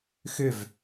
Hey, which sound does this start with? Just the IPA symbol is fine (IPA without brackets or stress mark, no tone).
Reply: x